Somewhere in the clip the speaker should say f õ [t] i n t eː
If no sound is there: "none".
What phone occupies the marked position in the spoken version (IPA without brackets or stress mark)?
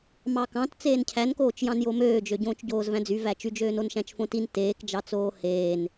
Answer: t